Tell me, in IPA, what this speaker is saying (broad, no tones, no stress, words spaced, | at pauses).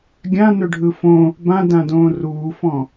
ɡʲã nɵɖʱɯfõ | bãdãdõː ruːfɔ̃